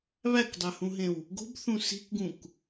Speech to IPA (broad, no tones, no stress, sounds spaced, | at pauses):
β æ k dˤ æ h ũ ɦ ẽ w | ɡ o̤ b θ ũ s i̤ k ɡ ũ k